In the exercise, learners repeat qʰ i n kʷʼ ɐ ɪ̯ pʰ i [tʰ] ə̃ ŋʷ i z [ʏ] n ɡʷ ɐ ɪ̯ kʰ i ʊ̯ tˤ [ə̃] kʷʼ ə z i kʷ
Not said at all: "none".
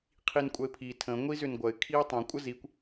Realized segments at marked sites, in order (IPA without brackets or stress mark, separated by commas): tʰ, ʏ, ə̃